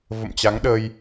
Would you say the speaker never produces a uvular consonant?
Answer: yes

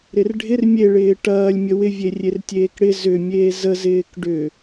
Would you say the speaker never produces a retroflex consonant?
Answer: no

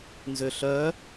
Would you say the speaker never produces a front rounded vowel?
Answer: no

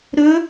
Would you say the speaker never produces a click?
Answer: yes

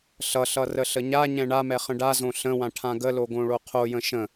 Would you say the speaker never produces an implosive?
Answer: yes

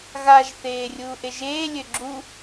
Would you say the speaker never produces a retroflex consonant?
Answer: yes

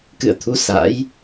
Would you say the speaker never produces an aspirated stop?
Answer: no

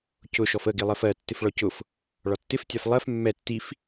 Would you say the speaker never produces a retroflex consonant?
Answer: no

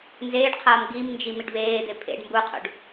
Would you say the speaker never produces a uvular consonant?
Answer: no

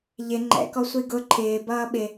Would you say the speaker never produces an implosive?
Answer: no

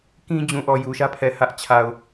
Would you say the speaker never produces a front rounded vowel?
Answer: yes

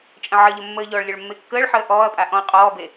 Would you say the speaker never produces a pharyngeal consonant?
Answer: no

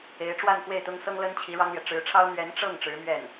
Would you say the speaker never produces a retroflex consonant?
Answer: no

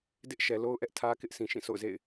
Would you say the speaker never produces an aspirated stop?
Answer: no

